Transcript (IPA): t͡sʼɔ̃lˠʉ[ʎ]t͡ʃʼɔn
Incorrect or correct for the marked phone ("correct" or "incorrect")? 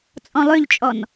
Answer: correct